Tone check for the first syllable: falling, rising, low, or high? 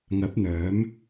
rising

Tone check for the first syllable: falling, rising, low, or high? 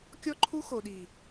high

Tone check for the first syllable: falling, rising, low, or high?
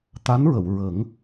rising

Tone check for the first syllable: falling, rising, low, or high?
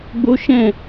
high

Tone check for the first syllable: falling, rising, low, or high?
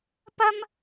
high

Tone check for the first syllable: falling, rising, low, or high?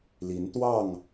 rising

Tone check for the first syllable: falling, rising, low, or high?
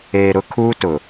low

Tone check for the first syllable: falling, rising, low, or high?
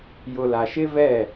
low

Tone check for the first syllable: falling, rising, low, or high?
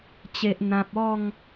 low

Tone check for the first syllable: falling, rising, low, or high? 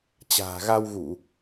low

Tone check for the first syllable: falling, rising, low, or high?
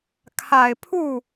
low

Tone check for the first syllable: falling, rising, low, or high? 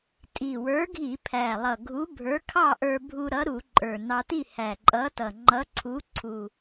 low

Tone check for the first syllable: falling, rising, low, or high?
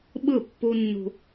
falling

